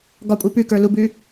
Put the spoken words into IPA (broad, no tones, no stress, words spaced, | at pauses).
ɡɒkʷʼi pʉkə˞ lubʉː